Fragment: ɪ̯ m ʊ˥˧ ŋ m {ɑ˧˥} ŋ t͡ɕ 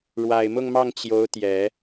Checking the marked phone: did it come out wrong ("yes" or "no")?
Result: yes